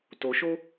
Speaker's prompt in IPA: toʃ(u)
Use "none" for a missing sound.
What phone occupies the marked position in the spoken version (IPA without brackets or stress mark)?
o